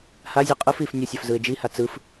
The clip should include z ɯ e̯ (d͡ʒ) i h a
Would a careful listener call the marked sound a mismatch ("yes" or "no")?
no